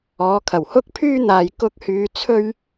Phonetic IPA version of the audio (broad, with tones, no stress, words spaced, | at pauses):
ɔː˨˧kʰɐ˨˩w hʊ˥k̚pʰyː˥ n̪aː˧jkʊ˥k̚ hyː˧ t͡sʰɵ˥ɥ